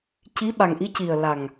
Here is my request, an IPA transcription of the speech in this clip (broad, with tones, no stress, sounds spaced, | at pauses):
c i˧˥ ɓ a˨˩ ŋ ʔ i˧˥ c i˨˩ ə̯ l a˨˩ ŋ